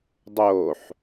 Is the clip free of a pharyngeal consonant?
no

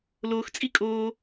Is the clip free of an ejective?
no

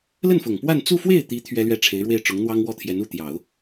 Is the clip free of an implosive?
yes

